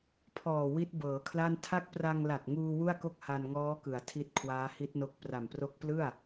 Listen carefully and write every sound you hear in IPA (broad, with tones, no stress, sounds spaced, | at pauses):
pʰ ɔː˨˩ w i˦˥ t̚ b ɤː˩˦ kʰ l a˥˩ n tʰ a˦˥ k̚ p r a˧ ŋ l a˨˩ t̚ ŋ uː˧ w u˥˩ a̯ k o˥˩ k̚ h a˧ n ŋ ɔː˦˥ k ɯ˩˦ a̯ tʰ i˦˥ t̚ kʰ w aː˦˥ h i˦˥ t̚ n o˦˥ k̚ p r a˨˩ m p r o˦˥ k̚ p l ɯ˥˩ a̯